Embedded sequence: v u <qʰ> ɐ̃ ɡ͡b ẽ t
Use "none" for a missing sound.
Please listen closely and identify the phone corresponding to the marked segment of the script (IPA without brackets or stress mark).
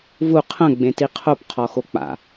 qʰ